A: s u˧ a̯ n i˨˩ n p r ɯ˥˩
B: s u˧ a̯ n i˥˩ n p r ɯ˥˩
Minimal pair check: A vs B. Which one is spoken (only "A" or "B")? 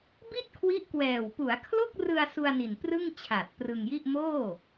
A